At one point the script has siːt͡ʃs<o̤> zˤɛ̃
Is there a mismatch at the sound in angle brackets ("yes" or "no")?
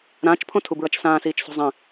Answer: no